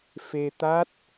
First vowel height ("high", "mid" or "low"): mid